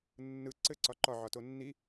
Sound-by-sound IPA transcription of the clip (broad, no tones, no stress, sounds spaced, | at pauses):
nː ɯ ǀ ɘ ǀ ɒ ǃ ɒ ʕ ɒ t o nː i